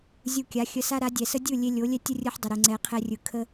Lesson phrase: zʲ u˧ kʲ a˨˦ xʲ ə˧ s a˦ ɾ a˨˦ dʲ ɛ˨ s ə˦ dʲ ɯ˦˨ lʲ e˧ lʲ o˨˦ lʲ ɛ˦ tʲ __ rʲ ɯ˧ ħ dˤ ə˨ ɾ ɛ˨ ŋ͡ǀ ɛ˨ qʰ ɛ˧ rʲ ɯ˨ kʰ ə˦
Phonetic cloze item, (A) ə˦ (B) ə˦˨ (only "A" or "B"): A